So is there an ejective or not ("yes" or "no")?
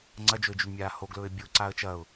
no